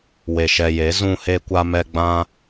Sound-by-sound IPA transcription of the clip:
we˨ʃɛ˨ je˨˦ zũ˧he˧ kʷa˧mɛ˧ ɡ͡bã˧

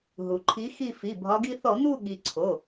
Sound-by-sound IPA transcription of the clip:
ɦu˩ǃʰi˨˦ xi˦˨fi˩˧˩bʱɒ˨˦ɡi˦ θɔ˧˩˧n̪u˦˨ɠi˩ ǀʰo˩˧˩

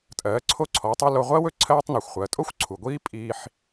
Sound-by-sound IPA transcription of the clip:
tʼɜː˩˧ǀʰo˧ǀʰɔː˩˧tˤu˧ lo˧ʁʷɜ˥wɵ˧ ǀʰɜː˥tˤnɔ˩xʷ χʷɜ˩˧ tʼo˥xʷǀʰu˩ɡʷiː˥ pʼiː˧ħ

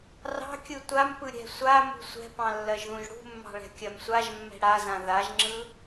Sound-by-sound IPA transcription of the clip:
rɑ̤kʲɯ tʷampɯ ɾʲɛ̤sʷamṳ sʷɛ̤pɑ̃ lːɜʒðũʒɽṳmːɑ̤ ɭɛ̤kʲɜmsʷaʒmːɛ̤ ɽazã ðaʒŋ͡ǁɯ

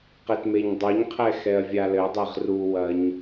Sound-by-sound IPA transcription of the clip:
qetmeɲdˤoɲqʰɛ xɛɐ̯vʲalɘdˤeʁ ruwɐɲ

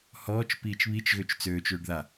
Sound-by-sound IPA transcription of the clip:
hɔːt͡ʃ piːt͡ʃβit͡ʃɣøt͡ʃ t͡søːt͡ʃøːɖða

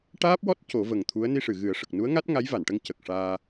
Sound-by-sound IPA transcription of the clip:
ʈaː˦˥p̚wɔ˦˥t̚ co˨˩˦və˨˩ŋt̪ʰu˧˥ə̯ ni˧ʂɨ˨˩˨ɣɨ˨˩˦ə̯ ʂə˨˩k̚nu˧˥ə̯ŋa˦˥t̚ ŋa˧˥jva˨˩˨nʈə˧ŋ cə˨˩k̚ʂaː˧

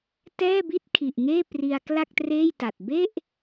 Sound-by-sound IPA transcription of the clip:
tɛː˥˩bi˥˩t̚kʰi˨˩ʔŋeː˥˩ pri˧a̯kla˥˩k̚treː˥˩jta˨˩t̚ be˥˩ʔ

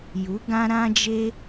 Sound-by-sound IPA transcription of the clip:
ju˨˦ ɡã˦ɾã˦d͡ʒe˦

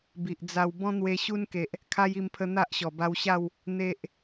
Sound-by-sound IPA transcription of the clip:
bi˨ʔd͡za˧w bɔ̃˦n̪we˧ ɕu˦nke˨ʔ | kʰa˦ji˧mpʰə˧ n̪a˦ʔɕɔ˨˩ba˧wɕa˥˧w | n̪e˦ʔ

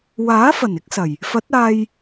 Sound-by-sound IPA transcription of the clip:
waː˨˥ fɐ˨˩n ɪ˥k̚sɐ˨˩j | fɐ˨˥t̚aː˧j

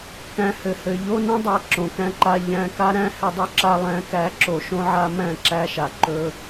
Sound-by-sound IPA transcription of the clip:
kæ̃˨ hɘ˨hɘ˨ ʎo˧nõ˧ dˤæ˨ ǁõ˨kæ̃˧ǃa˧ ʎæ̃˧ka˦ɾæ̃˦ hɘ˧dˤɵ˦ǁa˧ lˠæ̃˨˦kæ˨˦ǁo˨ ʃõ˦ʕa˦ mæ̃˦˨ǁæ˦ʃa˨ ǃɵ˦

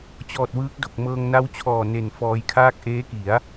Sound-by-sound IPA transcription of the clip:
t͡ɕɔː˨˩t̚wɯː˦˥k̚ do˨˩k̚ mɤː˧ŋ na˦˥wt͡ɕʰɔː˨˩ ne˨˩nfɔː˧jkʰaː˥˩k̚ ʔeː˦˥ki˩˦a̯

